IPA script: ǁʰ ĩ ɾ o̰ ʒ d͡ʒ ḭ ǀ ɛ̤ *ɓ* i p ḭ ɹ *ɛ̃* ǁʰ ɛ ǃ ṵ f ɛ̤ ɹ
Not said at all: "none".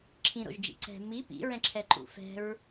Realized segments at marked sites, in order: m, ɛ̃

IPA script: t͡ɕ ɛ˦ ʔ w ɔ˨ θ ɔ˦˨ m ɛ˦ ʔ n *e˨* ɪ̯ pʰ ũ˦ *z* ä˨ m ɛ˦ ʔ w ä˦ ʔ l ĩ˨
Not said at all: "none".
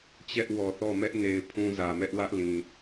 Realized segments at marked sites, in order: e˨, z

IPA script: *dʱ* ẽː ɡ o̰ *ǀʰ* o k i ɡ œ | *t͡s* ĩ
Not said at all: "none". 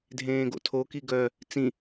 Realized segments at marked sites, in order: dʱ, tʰ, t͡s

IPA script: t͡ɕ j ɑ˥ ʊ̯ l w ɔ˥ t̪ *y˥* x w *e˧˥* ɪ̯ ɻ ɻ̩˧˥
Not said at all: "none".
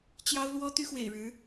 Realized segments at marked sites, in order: y˥, ḛ˨˩

